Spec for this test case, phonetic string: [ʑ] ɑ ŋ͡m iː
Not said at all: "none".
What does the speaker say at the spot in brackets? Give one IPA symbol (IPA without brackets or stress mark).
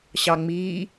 ɕ